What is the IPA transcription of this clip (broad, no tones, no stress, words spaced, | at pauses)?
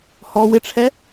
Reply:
hɔ wɪʈ͡ʂʰɛ